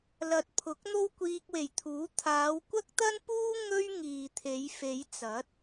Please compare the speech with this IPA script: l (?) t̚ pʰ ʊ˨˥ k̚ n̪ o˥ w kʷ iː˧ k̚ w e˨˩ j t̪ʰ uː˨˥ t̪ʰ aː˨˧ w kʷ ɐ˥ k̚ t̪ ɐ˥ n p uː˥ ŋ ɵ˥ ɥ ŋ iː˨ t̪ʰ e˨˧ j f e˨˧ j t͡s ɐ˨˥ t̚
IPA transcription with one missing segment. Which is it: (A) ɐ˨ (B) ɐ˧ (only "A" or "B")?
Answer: A